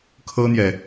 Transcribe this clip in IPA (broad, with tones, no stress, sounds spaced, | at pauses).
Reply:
kʰ ɤ˥ n̪ j ɛ˨